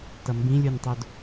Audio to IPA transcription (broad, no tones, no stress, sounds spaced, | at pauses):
t ʌ m b ĩ lʲ u nʲ tˤ o d